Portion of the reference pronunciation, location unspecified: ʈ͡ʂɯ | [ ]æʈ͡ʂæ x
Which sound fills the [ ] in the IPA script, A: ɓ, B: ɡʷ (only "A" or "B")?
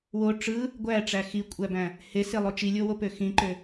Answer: B